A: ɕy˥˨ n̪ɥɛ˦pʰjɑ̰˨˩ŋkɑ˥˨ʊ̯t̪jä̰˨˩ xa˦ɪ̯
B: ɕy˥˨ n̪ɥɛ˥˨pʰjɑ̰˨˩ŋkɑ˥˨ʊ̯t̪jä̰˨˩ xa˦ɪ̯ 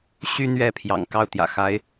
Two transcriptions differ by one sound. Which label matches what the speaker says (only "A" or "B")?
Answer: B